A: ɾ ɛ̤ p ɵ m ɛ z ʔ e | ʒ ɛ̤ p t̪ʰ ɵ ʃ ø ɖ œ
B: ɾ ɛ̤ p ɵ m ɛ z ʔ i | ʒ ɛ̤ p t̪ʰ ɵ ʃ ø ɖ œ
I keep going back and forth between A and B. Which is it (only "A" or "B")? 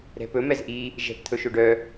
B